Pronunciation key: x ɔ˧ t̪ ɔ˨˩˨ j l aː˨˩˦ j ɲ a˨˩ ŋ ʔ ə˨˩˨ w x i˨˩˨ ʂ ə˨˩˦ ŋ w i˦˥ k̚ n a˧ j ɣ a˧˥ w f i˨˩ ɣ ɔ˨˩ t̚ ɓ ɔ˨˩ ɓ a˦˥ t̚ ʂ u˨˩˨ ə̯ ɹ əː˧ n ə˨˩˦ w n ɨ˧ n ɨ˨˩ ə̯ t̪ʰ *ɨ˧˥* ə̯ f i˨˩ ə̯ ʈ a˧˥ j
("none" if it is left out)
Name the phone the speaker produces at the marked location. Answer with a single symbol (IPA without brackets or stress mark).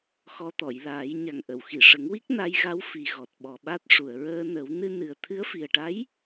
ɨ˧˥